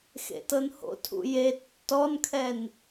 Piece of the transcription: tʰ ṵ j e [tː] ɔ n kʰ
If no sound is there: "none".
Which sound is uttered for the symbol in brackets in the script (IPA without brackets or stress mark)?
tː